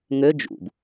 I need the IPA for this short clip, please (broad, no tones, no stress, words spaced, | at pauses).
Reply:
ŋø d͡ʒṵb